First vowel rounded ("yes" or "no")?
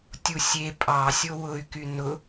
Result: yes